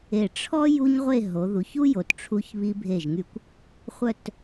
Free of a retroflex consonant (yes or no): no